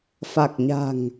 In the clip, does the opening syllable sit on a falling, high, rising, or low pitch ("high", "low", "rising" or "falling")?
low